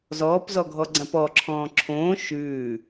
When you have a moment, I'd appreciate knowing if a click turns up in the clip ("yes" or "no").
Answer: yes